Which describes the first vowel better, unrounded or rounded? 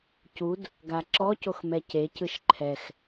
rounded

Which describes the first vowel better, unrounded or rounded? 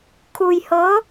rounded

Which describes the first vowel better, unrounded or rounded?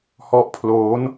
rounded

